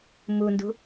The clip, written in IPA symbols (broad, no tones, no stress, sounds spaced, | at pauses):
m u n d ṳ